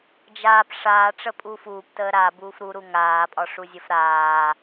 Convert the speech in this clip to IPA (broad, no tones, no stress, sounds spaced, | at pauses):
d͡ʒ aː p ʂ aː ʈ͡ʂ ə pʼ uː f uː p t əː ɾ a b uː f ɾ u ɾ u ŋ aː pʼ ɒ ʂ u zʲ ə f ɾ aː